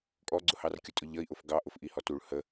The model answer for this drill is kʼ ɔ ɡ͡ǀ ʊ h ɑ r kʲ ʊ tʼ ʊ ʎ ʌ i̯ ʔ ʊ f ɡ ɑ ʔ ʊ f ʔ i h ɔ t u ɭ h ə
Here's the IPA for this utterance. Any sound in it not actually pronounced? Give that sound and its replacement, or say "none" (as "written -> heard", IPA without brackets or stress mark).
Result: none